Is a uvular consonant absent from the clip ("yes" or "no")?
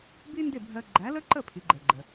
yes